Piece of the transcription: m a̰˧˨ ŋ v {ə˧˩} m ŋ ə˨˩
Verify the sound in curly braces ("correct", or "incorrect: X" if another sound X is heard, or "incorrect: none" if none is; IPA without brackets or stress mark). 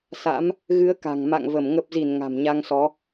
correct